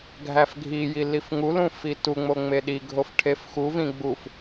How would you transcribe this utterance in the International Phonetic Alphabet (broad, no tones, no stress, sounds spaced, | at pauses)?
ɡʱ æ f ɡʱ i j i l i f ŋ u l ũ f i t u ŋ͡m o ŋ͡m e ɗ i ɡʱ o f ʈʰ e f x u v ĩ ɡ͡b u f